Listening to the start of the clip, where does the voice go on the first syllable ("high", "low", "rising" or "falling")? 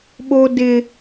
high